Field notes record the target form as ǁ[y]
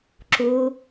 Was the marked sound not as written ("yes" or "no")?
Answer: yes